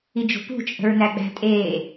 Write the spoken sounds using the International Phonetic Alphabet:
i d͡ʒ o̤ p ṳ t͡ʃʼ ə̤ ɹ n æ ɡ͡b æ̤ tʼ e

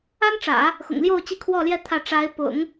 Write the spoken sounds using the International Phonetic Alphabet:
a˥ n ʈ͡ʂ ä̰˨˩˦ | x ʊ̰˨˩ ŋ l j o˥˧ ʊ̯ t͡ɕ i˥˧ kʰ w ɔ˥˩ l j ɛ˥ t̪ʰ ä˥˩ ʈ͡ʂ a˧˥ ɪ̯ p ʊ̰˨˩˦ ŋ

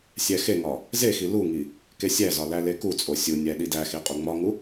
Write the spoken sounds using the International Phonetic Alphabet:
sʲ æ x e ŋ ɒ | z e x i l u ŋ i | k e sʲ æ z ɒ l æ l e k u t͡sʼ o sʲ u nʲ æ ɗ i d æ x e qʼ u ŋ͡m ɒ ŋ u

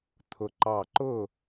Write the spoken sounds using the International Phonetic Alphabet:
t̪ʰ ʊ˧˩ ǃ ɑ˧˩ ǃ ʊ˥˨

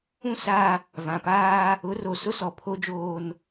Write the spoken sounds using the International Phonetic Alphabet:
ũ˦ s a˦ | v ã˨ p aː˦ | ʊ˨˦ r o˨ s ʊ˦ s ɔ˨ pʰ o˦ d͡ʒ oː˦ n

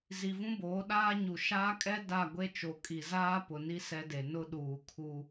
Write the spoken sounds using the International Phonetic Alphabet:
z i˨ v ũ˦ b oː˨˦ ɗ aː˦ ɲ u˨ ʃ aː˦ kʼ ɛ˦ d a˦˨ ɡʷ e˦ t͡ʃ o˨ kʼ i˨ z aː˦ p ʊ˨ n i˦ s ɛ˦ d e˨ n ʊ˦ ɗ uː˨ kʰ u˦

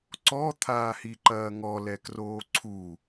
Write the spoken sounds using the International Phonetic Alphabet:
ǀ ɔ t̪ʰ aː h i ǃ ɐː ŋ ɔ l ɛ k r oː ǀʰ u

